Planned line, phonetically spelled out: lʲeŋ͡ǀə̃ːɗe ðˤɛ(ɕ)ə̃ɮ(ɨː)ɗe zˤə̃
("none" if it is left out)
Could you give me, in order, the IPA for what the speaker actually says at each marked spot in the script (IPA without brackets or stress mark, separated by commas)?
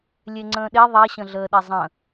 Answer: ɕ, əː